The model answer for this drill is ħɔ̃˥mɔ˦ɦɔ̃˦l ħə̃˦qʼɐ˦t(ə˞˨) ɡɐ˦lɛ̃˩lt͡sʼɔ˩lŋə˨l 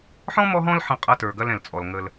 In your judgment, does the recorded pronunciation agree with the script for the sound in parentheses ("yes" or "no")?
yes